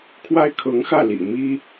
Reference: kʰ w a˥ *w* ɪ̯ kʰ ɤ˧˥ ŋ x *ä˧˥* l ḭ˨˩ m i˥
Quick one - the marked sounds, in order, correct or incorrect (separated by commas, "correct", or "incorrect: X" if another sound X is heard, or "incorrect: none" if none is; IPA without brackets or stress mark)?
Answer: incorrect: none, incorrect: ä˥˩